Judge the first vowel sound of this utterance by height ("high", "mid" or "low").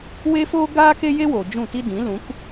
mid